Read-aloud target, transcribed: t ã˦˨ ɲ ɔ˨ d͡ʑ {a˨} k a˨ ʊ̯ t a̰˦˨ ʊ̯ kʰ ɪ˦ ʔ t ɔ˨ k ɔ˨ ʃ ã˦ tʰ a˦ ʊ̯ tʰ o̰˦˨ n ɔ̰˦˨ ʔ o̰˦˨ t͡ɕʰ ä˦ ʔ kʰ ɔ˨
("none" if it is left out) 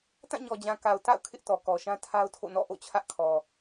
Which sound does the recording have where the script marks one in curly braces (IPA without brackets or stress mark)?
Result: ã˨